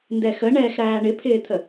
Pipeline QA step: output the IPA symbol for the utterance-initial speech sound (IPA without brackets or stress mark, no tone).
n